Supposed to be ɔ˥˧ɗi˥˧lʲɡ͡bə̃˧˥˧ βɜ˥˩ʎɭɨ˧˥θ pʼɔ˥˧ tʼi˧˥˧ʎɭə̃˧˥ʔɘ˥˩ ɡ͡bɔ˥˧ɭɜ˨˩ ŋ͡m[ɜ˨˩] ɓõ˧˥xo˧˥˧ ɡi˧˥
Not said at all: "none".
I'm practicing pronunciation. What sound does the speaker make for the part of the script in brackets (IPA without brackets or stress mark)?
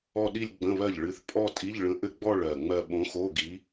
ɜ˥˧